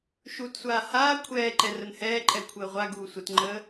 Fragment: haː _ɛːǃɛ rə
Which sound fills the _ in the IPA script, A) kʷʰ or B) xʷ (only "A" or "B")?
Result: A